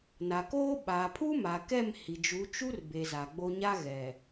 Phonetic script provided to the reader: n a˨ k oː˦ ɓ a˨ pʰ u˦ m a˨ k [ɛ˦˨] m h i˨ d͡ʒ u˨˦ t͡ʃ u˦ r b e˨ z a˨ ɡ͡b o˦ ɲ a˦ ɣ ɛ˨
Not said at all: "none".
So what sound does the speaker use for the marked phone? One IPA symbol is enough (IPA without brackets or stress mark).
ɛ˦˨